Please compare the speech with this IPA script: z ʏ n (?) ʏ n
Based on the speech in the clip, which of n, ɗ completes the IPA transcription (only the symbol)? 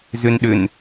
ɗ